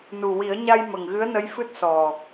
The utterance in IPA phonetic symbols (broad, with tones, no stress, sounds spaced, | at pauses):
n u˨˩ w i˨˩˦ ə̯ ɲ a˧ j m ə˨˩ ŋ ɣ ɨ˧˥ ə̯ n ə˧˥ j f ɨ˦˥ t̚ s ɔ˨˩